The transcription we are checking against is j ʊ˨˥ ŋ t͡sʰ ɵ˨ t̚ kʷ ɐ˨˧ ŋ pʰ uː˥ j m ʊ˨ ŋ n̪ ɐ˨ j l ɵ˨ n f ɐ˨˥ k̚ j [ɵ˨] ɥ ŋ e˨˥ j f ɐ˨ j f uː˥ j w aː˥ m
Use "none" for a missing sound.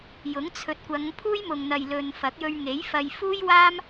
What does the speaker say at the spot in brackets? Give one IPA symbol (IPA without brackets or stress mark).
ɵ˧